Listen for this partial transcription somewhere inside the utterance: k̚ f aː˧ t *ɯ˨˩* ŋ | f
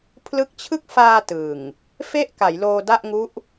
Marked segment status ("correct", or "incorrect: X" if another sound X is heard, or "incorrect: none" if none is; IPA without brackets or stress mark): correct